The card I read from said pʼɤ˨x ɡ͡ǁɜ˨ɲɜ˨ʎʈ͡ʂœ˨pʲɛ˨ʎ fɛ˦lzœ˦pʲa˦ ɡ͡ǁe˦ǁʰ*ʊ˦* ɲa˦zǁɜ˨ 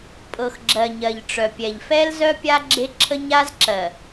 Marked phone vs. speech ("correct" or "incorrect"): incorrect